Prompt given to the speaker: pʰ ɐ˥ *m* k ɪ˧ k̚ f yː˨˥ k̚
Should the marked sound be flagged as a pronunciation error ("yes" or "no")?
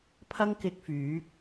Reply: yes